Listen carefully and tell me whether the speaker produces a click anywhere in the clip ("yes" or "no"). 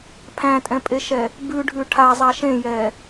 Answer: no